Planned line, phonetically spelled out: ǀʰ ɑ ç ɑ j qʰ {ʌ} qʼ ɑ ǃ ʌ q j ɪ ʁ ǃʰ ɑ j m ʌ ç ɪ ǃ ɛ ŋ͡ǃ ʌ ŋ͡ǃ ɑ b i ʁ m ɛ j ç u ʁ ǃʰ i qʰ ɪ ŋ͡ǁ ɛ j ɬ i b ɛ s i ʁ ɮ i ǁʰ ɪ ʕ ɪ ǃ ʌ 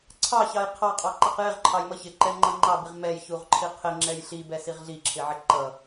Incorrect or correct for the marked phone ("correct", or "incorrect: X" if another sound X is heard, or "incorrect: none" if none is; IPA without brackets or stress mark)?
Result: incorrect: ɑ